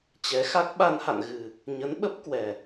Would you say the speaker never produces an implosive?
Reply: no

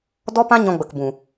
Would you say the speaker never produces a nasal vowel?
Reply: no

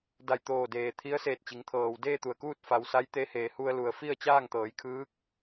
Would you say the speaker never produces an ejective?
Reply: yes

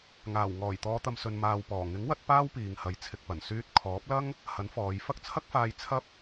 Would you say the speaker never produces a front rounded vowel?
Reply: no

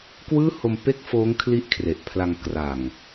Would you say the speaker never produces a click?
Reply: yes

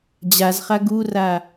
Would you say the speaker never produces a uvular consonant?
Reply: no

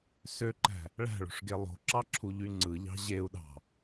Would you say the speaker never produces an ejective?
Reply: yes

